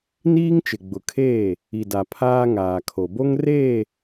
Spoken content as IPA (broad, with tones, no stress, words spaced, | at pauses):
niː˦ŋt͡ʃɪ˨ɡ͡bʊ˨kʰeː˦˨ | i˨da˨ pʰaː˦ŋaː˨kʰo˨ bo˦ŋ reː˦˨